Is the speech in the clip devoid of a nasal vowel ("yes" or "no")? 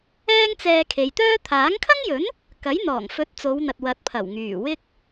yes